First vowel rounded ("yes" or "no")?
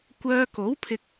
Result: yes